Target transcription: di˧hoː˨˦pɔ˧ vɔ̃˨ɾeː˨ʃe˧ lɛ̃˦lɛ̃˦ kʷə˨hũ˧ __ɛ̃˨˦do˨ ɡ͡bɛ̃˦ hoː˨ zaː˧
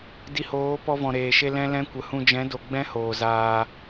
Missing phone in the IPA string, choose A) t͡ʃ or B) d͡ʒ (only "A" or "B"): B